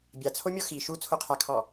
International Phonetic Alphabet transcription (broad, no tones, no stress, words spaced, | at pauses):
bʲat͡sʰomʲɔ xi ʃut͡sʰoqʰakʰɔ